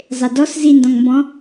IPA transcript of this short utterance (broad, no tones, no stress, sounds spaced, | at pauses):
zˤ e d ɔ s z i n d ɔ̃ ŋ m b ɔ̃